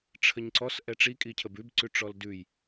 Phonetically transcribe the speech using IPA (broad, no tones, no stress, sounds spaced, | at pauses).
ʈ͡ʂʰ ə ɲ ǀ ɔ s ʔ ɛ ʈ͡ʂ i kʼ i cʰ ə b ʉ b ǀ ʉ ʈ͡ʂ ɔ l d ʉ j